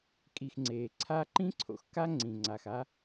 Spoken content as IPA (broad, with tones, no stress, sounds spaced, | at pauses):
kʼ i˨ x ŋ͡ǀ eː˩ ǀʰ aː˦ ǃ ĩ˥ ǀʰ o̰˨ x k a˥ ŋ͡ǀ ĩ˩ ŋ͡ǀ a˩ x a˦